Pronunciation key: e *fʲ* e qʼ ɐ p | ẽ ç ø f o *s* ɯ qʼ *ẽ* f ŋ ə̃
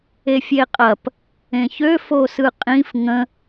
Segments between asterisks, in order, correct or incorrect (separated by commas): correct, correct, incorrect